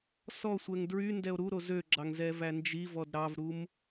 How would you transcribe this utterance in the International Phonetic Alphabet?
sɔsʷɛŋ dɹy ndɛo̯ɾuɾo zøɡ͡ǁɑŋ zɛvænd͡ʒivɔd ɾɑvɾum

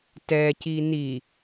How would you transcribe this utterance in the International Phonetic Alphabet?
tɛci ni

